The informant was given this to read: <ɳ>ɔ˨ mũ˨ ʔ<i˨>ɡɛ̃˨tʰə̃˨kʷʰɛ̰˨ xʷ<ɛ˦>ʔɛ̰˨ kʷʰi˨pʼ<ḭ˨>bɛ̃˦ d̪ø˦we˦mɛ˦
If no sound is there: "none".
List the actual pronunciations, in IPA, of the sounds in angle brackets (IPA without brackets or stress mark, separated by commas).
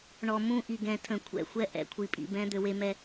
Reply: ɳ, i˨, ɛ˦, ḭ˨